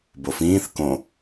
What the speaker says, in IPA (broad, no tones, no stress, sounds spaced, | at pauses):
b o f ĩː θ k õ